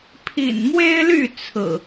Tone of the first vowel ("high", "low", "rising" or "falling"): low